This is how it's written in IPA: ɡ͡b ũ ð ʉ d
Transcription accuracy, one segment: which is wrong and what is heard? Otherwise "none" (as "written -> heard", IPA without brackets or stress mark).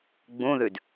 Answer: none